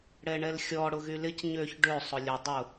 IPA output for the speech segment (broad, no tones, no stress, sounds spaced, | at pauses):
ɽ ɛ ɳ ɛ l xʲ ɔ ɽ ʊ ɣ y l ɪ c ɲ ø ç ɖ ø sˤ ʊ lʲ ə dˤ ʊ